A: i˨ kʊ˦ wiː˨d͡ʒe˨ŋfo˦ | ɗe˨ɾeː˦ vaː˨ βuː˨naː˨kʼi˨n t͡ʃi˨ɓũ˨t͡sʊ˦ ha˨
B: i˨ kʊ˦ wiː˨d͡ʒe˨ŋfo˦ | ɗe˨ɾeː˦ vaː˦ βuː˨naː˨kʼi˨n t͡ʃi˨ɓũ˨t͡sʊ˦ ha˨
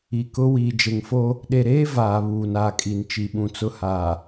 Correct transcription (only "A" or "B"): A